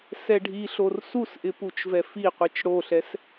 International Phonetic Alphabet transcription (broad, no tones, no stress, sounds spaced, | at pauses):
s ɛ ɖʱ i ɬ o r s u s ʔ ɪ p u t͡ʃ v ɛ f i qʷ i t͡ʃ ɽ o ɬ ɛ s